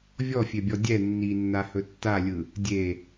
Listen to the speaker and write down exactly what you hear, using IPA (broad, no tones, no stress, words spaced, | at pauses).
vʲɔfʲebʲɔ dʲɛ nːinːahɵ tːalʲɯ | dʲe